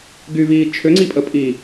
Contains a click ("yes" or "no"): yes